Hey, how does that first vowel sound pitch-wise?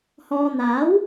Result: low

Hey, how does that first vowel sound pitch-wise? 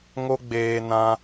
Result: high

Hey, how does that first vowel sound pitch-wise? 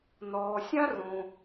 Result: low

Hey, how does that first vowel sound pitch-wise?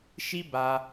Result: high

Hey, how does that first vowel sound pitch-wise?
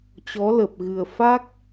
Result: rising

